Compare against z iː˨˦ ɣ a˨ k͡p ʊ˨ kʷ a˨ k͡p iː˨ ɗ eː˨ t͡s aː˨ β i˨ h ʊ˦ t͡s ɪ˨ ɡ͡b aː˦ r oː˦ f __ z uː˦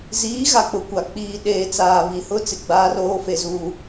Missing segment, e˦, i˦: e˦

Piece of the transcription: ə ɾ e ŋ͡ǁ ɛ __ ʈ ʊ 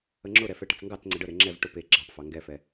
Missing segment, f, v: v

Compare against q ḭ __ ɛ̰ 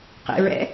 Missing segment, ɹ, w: ɹ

